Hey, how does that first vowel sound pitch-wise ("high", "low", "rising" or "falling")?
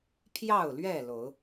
falling